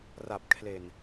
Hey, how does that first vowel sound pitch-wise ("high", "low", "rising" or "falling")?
low